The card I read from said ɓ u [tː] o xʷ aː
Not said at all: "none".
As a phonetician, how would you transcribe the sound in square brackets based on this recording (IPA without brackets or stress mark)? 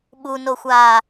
n